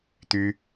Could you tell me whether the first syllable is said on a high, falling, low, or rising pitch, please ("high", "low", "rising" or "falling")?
high